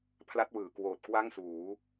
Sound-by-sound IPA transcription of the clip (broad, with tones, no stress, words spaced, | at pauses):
pʰla˦˥t̚wɯː˩˦kwoː˨˩t̚ kwa˥˩ŋsuː˩˦